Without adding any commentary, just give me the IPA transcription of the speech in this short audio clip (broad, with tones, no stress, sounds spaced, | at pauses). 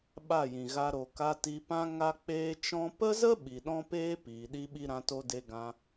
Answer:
ɓ a˦˨ j ĩ˨ ɣ a˧ ɾ o˨ k a˧ t i˧ p ã˦ ŋ a˦ k͡p eː˦ t͡ʃ ɔ̃˦ p ə˦ z ə˦ ɓ i˨ ɗ ɔ̃˦ p eː˦ p iː˨ ɗ i˦ ɓ i˦ ɾ ã˦ t o˦ d e˦ ɡ ã˧